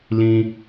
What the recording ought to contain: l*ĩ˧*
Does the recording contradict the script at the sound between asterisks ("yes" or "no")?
no